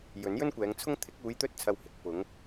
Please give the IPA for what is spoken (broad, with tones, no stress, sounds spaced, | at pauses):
j ɵ˨˥ n j ɵ˥ n kʷ ɛː˨˧ ŋ t͡sʰ ʊ˥ ŋ t̪ʰ ɪ˨˥ k̚ uː˨˧ j t̪ ɵ˧ t̚ t͡sʰ ɐ˨ w h ɪ˨ k̚ p ʊ˨˧ ŋ